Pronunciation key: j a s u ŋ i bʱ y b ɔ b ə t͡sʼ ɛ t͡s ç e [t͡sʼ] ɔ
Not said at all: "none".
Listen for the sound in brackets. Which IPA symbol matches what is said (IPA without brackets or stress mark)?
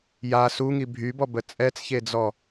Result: d͡z